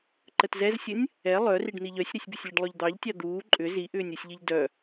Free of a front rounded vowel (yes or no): no